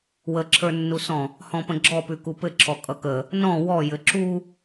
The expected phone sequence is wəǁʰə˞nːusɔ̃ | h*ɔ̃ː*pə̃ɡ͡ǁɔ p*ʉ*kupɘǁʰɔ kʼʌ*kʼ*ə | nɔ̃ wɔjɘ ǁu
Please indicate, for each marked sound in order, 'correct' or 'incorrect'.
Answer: incorrect: ɔ̃, correct, incorrect: k

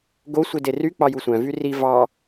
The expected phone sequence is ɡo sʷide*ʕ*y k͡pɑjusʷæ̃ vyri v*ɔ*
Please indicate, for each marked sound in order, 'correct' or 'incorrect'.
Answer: incorrect: r, incorrect: ɑ

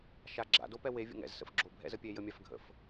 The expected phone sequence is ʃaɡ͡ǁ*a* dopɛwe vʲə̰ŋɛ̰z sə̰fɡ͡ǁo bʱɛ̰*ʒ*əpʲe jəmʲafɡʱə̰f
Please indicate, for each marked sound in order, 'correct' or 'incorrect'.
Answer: incorrect: a̰, incorrect: z

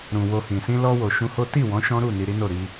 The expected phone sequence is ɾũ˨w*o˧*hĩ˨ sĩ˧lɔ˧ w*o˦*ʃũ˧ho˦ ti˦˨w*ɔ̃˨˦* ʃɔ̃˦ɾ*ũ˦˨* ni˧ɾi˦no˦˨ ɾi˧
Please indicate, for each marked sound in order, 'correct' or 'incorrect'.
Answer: correct, incorrect: o˨, correct, incorrect: u˦˨

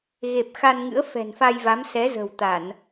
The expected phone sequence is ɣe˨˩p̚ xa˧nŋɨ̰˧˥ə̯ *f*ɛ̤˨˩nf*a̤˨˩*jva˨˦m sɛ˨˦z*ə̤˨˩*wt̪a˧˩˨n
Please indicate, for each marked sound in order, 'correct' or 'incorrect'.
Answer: correct, incorrect: a˧, correct

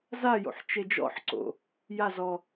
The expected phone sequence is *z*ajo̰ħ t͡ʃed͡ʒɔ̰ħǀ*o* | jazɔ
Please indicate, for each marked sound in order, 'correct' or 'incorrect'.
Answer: correct, incorrect: o̰

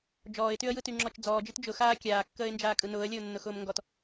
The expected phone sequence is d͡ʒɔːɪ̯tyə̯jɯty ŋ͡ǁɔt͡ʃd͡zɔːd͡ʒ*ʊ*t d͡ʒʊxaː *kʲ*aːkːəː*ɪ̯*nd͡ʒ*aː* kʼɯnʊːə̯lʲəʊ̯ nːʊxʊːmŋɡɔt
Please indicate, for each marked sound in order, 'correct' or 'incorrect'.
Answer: incorrect: ɯ, correct, correct, correct

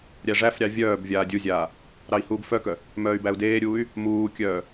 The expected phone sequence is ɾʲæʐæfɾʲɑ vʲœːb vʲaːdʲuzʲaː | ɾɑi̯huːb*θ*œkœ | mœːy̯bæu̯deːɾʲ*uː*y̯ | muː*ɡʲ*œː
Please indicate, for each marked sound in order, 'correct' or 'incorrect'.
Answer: incorrect: f, correct, incorrect: kʲ

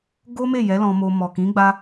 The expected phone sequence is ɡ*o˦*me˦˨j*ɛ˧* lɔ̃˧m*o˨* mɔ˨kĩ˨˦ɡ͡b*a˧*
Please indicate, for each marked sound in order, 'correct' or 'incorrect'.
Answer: correct, incorrect: ɛ˨˦, incorrect: o˧, correct

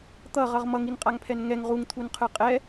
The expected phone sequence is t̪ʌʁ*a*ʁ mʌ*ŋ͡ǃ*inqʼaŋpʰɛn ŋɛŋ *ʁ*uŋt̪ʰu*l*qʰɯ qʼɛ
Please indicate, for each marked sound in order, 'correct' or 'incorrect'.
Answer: incorrect: ʌ, incorrect: ŋ, correct, incorrect: n

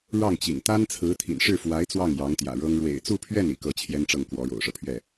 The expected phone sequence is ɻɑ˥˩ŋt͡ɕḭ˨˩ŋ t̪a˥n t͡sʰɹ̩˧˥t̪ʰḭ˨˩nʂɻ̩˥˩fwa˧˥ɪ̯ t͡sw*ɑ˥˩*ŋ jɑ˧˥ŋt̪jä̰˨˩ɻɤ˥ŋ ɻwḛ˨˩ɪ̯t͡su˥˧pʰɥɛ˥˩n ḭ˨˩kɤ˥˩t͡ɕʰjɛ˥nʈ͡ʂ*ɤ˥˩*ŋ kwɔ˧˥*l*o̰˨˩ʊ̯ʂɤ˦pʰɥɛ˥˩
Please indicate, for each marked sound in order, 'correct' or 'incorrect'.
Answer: correct, correct, incorrect: ɻ

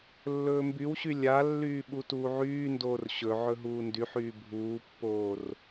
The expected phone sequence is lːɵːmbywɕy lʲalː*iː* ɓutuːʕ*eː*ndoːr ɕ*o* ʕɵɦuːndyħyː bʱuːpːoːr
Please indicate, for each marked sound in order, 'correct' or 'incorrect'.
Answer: incorrect: yː, incorrect: yː, incorrect: ɵ

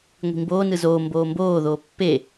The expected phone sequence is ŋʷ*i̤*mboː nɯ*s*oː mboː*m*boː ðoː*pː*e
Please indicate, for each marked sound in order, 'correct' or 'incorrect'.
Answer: correct, incorrect: z, correct, correct

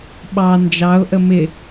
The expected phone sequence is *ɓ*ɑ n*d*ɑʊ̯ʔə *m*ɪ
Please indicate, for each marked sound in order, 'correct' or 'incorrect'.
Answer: correct, incorrect: d͡ʒ, correct

